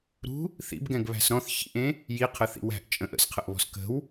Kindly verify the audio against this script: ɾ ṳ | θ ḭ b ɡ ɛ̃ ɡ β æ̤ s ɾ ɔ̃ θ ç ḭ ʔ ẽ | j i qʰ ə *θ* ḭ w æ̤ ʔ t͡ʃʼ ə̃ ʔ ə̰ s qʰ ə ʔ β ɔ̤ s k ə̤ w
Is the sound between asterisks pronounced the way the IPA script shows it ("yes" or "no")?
yes